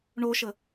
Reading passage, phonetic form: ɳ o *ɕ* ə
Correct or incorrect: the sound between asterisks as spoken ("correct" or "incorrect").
incorrect